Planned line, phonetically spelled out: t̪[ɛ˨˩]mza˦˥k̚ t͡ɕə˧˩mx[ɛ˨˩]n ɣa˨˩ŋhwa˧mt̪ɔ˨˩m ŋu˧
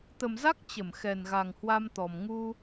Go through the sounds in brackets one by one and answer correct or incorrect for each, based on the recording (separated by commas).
incorrect, correct